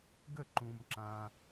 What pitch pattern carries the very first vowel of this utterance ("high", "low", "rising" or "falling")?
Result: falling